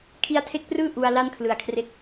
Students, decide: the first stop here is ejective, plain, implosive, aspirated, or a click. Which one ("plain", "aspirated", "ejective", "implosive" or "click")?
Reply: aspirated